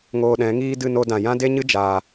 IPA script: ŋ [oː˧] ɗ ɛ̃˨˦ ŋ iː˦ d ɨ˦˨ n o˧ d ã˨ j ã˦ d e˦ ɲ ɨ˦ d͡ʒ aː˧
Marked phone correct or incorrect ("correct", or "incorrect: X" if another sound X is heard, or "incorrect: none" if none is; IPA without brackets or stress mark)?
correct